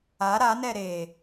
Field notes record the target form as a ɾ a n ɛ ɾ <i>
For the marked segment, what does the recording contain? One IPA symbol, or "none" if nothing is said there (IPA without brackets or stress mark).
e